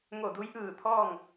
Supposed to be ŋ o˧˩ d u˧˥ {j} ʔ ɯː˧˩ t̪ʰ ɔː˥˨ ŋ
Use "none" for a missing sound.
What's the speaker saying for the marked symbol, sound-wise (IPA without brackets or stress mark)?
j